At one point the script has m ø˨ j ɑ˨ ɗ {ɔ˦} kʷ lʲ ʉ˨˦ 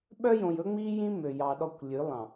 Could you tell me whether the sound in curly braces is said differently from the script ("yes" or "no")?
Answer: no